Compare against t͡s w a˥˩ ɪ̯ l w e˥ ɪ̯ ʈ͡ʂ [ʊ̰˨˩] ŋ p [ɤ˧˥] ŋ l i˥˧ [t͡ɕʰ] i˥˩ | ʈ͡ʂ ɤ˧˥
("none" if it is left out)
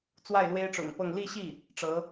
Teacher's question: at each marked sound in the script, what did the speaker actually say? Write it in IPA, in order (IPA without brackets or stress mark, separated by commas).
ʊ̰˨˩, ɤ˥˧, ɕ